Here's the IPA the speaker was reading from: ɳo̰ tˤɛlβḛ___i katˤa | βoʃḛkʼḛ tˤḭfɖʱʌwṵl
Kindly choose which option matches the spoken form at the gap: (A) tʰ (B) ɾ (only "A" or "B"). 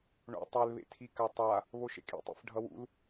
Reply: A